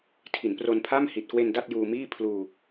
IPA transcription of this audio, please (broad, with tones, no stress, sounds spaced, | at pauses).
tʰ i˩˦ n p r o˧ n pʰ a˥˩ m h i˨˩ t̚ k w e˧ n d a˥˩ t̚ j uː˧ m iː˥˩ pʰ l uː˧